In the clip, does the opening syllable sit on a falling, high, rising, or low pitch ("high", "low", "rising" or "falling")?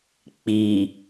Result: low